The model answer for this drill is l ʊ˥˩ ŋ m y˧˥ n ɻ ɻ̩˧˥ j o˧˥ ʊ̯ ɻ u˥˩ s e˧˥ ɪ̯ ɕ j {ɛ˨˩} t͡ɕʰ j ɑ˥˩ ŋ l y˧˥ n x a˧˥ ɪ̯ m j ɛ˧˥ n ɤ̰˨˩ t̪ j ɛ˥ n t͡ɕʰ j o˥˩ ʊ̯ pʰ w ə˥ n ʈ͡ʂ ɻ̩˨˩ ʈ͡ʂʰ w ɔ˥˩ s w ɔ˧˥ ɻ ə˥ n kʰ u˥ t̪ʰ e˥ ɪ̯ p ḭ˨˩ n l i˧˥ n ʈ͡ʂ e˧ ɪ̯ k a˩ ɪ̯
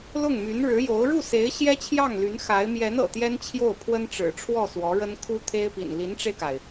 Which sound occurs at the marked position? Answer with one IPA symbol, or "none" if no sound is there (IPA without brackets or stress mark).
ɛ˥